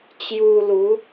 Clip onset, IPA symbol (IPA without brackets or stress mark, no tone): t͡ɕ